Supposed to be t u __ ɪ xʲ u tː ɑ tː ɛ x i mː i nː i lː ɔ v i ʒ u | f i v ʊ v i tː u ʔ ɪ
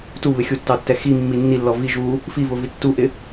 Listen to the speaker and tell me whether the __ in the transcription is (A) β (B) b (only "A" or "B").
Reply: A